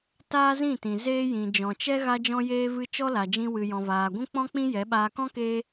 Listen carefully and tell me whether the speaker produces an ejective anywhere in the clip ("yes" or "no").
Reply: no